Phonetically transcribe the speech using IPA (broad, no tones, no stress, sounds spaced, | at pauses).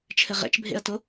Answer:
t͡ʃʰ ɘ ʁ ɛ̰ t͡ʃ bʱ ḛ ɐ̯ t o